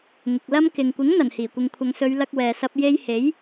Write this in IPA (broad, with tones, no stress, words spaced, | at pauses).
ŋɪ˨k̚lɐ˥m kɪ˨ŋ kʷɪ˨˥ŋ n̪ɐ˨˩nhiː˨˩kʷɪ˨ŋ kʷʰɐ˨ŋsɵ˨˧ɥ lɐ˧k̚wɛː˨sɐ˧p̚ je˧jhe˨˥j